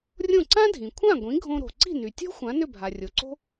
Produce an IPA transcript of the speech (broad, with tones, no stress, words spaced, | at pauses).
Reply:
rʲõ˥˩ ǀã˥ dʱĩ˩kʷʰã˥˩ɡʷĩ˩˥ ɡʱõ˧ɾo̤˩ ǀi̤˥˩ny˩tʲo̤˥ xʷã˩˥ nʏ˥˩bʱa˩rʲo˩ǀo̤˥